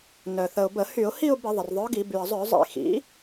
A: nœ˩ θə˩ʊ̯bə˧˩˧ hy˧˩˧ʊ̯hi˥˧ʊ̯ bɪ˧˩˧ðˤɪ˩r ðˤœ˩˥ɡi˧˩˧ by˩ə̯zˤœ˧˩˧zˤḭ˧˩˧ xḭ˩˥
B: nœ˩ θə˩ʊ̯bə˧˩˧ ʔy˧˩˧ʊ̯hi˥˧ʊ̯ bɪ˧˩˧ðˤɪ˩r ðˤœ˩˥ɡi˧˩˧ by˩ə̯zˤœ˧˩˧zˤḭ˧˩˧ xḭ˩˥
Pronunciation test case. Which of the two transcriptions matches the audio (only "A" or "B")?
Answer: A